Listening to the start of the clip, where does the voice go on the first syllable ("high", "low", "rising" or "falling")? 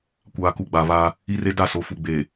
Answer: low